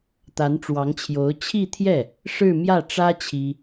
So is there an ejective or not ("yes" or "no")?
no